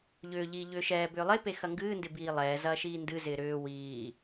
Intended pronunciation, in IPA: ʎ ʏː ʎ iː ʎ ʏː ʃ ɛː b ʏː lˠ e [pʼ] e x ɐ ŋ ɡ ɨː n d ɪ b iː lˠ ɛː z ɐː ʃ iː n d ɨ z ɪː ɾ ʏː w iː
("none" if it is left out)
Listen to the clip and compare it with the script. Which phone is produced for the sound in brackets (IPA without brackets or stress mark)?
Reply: p